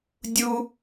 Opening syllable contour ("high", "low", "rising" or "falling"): high